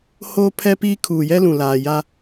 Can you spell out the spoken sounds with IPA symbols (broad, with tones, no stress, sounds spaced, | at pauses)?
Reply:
h oː˦ pʰ ɛ˦ p iː˦ kʰ uː˨ j ɛ˦ l ũ˨ l aː˨ j a˦